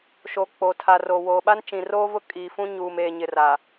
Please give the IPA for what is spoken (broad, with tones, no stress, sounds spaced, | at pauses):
ʃ o˨ k͡p o˨ tʰ a˨ r o˨ w oː˨ ɓ a˦ n t͡ʃ ĩ˨ r oː˦ v ʊ˦ kʼ iː˨ f ũ˦ ɲ uː˨ m eː˨ ɲ ɪ˨ r a˨